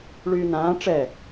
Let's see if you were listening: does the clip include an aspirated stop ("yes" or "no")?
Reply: no